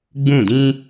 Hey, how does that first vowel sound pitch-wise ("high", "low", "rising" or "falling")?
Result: falling